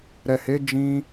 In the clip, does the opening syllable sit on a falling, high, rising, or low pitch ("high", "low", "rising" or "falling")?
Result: low